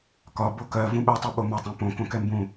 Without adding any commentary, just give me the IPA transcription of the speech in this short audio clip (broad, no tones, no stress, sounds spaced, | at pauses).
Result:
k ɒ b o k ɜ v ũ ɓ ɛ tˤ u ɓ o m ɒ tˤ ɛ̃ p õ k õ k ɛ m b ũ